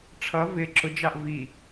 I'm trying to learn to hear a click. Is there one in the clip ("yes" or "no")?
yes